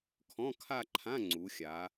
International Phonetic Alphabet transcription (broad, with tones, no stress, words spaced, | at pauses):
kʰɔ̃˧˥˧kʰa˥˧ǃʰã˧˥˧ ŋ͡ǀu˩˧xʲa˩˧